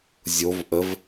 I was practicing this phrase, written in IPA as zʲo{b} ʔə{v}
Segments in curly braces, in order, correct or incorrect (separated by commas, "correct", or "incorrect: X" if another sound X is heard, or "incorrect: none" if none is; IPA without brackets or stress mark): incorrect: v, correct